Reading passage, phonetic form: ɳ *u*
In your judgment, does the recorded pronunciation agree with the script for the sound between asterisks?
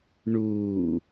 no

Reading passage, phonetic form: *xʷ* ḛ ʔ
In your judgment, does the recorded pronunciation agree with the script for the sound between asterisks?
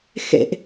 no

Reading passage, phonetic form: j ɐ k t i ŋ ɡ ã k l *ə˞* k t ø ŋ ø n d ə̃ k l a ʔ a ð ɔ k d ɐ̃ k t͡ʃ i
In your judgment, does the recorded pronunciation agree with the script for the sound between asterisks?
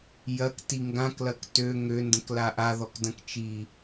no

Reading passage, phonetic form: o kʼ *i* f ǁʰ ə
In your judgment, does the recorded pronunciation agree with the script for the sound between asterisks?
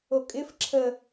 no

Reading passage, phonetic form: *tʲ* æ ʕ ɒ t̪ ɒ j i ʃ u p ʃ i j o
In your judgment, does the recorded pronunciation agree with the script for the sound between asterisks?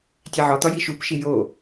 yes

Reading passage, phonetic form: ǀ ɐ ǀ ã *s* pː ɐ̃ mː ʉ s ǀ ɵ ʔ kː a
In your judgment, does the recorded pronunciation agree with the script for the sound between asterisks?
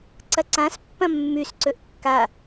yes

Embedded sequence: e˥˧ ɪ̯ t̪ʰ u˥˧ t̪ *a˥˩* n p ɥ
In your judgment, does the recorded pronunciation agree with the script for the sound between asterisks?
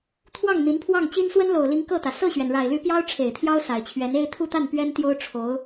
yes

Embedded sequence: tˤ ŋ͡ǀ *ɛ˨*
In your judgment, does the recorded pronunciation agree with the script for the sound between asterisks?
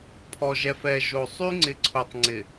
no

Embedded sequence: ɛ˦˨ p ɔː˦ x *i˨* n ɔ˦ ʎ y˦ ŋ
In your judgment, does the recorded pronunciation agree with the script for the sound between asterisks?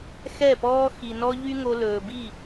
yes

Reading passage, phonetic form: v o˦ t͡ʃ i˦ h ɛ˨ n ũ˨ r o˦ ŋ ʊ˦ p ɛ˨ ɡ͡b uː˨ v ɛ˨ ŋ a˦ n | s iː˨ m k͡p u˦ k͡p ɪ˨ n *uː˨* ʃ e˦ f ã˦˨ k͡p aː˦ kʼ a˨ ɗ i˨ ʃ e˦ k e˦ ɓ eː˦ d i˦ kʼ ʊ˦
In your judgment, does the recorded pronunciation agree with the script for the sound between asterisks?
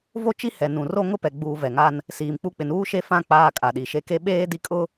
no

